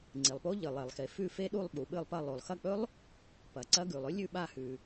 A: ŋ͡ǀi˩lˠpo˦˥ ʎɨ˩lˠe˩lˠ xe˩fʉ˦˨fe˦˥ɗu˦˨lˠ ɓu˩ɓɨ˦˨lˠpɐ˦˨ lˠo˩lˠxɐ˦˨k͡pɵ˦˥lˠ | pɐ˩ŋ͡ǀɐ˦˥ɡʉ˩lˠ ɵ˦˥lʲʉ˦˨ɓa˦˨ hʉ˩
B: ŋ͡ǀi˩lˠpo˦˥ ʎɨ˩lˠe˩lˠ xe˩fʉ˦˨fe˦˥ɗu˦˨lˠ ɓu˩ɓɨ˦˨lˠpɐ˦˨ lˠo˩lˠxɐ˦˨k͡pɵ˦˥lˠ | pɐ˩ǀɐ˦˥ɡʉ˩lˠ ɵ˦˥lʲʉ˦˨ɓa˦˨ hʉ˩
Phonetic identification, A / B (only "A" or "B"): B